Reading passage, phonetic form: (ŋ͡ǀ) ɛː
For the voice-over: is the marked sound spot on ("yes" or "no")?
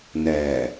no